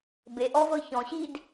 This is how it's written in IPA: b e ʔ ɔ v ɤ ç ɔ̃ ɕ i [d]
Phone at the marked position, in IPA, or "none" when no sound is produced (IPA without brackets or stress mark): d